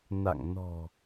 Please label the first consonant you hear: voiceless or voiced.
voiced